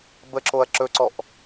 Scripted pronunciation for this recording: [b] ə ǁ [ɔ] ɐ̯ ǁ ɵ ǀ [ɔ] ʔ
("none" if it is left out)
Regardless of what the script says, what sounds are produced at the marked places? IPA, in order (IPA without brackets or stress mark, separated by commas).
b, o, ɔ